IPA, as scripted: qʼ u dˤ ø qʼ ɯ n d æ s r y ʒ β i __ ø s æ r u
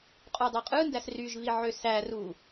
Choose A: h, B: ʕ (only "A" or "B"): B